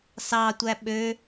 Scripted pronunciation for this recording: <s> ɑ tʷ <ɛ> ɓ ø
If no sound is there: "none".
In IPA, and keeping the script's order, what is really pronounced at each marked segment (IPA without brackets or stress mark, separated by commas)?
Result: s, æ